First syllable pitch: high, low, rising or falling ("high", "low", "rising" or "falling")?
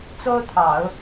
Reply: high